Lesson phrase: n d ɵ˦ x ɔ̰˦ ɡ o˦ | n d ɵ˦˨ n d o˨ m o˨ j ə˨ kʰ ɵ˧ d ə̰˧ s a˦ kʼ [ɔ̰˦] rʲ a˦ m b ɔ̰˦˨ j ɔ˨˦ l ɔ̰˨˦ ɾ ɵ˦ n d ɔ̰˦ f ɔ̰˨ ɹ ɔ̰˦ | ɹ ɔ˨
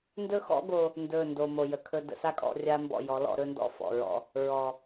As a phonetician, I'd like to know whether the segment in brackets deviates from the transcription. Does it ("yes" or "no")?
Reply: no